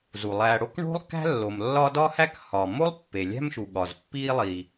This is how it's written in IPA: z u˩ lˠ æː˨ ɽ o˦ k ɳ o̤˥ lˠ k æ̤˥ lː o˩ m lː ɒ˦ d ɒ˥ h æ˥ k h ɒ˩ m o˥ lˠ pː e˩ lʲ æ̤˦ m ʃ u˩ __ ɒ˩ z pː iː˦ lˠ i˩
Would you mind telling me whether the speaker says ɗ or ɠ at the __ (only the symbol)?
ɠ